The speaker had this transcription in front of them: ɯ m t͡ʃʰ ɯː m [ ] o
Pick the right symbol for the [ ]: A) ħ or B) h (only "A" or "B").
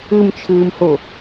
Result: B